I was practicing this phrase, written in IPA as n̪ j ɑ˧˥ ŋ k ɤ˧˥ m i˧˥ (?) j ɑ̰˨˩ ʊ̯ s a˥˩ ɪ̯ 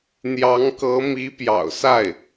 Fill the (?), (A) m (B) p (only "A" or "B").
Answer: B